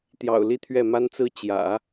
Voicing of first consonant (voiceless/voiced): voiceless